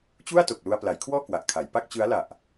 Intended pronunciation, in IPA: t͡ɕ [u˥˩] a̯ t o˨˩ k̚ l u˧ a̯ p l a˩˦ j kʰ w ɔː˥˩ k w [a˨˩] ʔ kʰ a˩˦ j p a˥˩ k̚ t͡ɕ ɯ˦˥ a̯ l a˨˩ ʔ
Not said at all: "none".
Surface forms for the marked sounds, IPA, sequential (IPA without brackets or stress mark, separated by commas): u˥˩, a˨˩